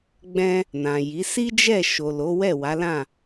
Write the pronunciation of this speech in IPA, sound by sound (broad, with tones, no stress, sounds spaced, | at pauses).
ɡ͡b ɛ̃˧ | n ã˨ j i˨˦ s i˦ d͡ʒ ɛ˦˨ ʃ o˨ l o˨˦ w ɛ˦˨ w a˨˦ l ã˦˨